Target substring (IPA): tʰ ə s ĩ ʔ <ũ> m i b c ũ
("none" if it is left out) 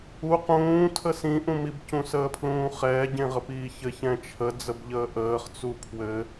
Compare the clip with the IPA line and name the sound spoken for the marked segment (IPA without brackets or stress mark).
ũ